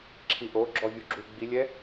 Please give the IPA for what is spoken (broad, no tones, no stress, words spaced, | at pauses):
ǁʰiʔo ɡ͡ǁɔvʲuɡ͡ǁu ɡ͡bilʲɛ